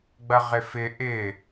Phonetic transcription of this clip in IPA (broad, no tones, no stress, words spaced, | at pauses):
ɡ͡bɐʁɪfɪ ʔɪ